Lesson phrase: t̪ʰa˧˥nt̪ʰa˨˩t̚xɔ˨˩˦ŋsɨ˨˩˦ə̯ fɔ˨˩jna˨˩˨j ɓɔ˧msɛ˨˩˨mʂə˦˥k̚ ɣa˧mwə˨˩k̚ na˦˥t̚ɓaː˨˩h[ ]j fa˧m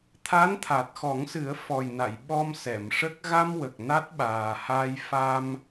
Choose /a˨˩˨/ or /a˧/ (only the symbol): a˧